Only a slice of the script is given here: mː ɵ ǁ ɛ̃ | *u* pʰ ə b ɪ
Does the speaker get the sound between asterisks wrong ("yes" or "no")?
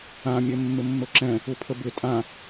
no